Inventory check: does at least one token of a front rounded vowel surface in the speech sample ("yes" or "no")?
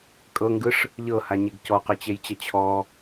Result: no